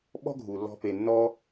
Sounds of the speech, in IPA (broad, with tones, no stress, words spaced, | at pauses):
ɓɔ̤˦ɡʱu˨lːɔ̤˧ pe˨nːɔ˧